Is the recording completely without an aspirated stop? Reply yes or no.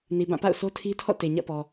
no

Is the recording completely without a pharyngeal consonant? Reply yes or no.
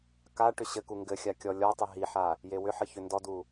no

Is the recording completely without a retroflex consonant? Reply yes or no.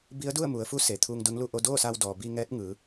yes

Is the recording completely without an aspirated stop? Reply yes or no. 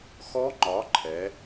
no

